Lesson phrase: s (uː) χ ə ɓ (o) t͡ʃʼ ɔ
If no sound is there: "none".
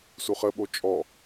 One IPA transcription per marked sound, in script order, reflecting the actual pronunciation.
u, o

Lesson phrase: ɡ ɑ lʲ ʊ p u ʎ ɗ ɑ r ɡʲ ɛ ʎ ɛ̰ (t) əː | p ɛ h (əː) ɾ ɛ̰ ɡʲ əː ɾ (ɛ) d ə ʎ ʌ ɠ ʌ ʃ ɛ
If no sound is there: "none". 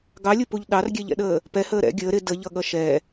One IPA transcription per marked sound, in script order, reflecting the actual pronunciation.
ɗ, əː, ɪ

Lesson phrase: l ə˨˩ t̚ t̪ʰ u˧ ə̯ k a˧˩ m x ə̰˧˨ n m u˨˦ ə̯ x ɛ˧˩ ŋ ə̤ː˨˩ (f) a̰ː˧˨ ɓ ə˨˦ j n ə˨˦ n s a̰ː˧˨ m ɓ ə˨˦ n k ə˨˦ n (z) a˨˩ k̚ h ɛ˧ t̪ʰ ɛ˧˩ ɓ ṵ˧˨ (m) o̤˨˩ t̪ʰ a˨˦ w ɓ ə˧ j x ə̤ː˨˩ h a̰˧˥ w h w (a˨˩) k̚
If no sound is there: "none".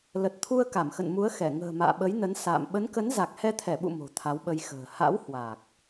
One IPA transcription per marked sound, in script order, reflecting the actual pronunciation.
m, z, m, a˨˩

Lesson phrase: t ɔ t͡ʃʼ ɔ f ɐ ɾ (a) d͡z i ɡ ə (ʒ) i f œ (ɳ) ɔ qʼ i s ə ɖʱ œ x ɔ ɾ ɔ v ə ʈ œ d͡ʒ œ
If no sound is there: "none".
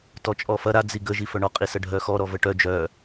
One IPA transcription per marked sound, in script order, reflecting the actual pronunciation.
a, ʒ, ɳ

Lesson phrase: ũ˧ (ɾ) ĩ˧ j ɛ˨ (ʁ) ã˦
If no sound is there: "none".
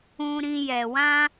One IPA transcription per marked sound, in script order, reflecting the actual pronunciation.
ɾ, w

